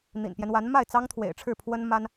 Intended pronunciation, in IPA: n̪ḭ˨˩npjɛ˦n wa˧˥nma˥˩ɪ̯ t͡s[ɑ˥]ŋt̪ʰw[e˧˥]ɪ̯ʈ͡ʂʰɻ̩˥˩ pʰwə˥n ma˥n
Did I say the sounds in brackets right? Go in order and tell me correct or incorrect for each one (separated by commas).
correct, incorrect